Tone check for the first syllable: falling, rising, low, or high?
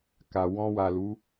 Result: low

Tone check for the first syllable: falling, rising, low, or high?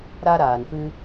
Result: high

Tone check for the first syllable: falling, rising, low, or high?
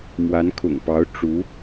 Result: rising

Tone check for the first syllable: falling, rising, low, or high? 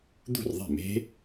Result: falling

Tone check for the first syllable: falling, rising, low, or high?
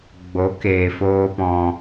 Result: rising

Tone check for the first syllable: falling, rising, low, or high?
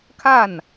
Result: falling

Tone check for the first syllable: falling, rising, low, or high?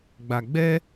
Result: low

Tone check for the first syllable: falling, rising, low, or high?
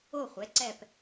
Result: falling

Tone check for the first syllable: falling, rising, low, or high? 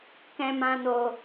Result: low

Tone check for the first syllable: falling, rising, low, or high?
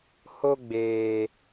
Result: high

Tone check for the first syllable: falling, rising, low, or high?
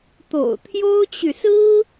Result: low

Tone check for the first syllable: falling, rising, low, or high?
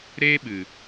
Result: high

